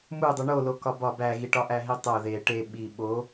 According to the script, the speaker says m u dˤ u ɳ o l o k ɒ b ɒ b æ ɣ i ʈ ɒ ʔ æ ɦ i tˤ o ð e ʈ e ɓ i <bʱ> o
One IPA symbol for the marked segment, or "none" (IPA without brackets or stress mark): ɓ